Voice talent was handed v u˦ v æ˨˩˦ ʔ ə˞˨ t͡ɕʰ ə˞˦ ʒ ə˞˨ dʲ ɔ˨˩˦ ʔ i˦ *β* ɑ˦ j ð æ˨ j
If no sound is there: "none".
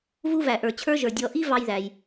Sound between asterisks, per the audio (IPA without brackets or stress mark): v